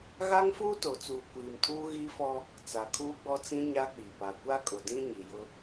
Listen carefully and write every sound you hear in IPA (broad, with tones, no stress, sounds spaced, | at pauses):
ɣ a˦ ŋ f uː˦ t o˨ t͡s uː˨ kʷ iː˨ m tʰ uː˦ ɣ iː˦ f ɔ˦ | t͡s a˨ kʰ uː˦ ɡ͡b ɔ˦ t͡s ĩ˦ ɲ a˦ k͡p i˨ p a˨ kʷ a˦ kʼ ʊ˨ d ĩ˦ ɲ i˨ j ʊ˦